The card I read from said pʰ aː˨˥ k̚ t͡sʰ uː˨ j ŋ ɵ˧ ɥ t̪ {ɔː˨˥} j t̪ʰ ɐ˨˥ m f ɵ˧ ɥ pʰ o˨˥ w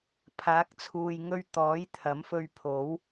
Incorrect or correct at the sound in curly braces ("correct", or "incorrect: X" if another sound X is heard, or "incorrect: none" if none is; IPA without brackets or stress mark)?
correct